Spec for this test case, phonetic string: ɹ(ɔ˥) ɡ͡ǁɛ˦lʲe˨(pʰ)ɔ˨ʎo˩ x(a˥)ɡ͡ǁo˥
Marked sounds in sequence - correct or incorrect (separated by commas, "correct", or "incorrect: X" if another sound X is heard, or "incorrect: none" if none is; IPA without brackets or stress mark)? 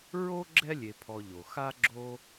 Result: incorrect: o˥, correct, correct